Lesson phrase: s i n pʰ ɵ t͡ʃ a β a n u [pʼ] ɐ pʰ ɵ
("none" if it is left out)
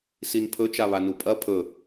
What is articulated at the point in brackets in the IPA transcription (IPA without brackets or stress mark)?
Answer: pʼ